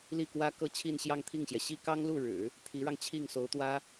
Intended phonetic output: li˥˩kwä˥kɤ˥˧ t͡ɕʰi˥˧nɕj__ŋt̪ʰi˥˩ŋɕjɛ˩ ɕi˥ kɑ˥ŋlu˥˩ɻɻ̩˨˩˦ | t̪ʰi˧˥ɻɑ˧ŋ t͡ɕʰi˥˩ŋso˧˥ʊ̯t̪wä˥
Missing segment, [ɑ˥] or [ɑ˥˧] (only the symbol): ɑ˥˧